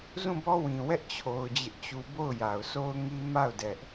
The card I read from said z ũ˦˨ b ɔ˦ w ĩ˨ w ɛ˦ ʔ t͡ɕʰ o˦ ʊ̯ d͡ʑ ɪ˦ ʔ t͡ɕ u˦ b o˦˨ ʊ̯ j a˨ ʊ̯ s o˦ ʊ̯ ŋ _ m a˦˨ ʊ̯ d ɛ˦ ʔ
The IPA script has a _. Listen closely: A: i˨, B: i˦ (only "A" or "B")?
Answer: B